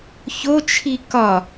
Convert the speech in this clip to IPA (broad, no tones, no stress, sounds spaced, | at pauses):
ç o t͡ʃʰ i k ɒ